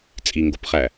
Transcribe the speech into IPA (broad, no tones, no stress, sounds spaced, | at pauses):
t͡sʼ i ŋ ɡ o p χ æ